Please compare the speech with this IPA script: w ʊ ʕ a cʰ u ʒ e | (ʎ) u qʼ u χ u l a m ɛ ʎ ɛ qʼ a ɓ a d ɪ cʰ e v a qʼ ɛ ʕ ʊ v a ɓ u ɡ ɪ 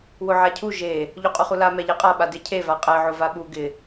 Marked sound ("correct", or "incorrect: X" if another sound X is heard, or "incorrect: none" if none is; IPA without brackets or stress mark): correct